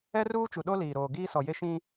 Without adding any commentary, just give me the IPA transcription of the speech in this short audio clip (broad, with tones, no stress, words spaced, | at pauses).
ɛ˦ruː˦t͡ʃu˨ɗo˦ liː˨ɾoː˨ ɡiː˦sɔ˨ je˦ʃĩ˦